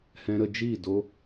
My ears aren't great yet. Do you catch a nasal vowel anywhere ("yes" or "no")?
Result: yes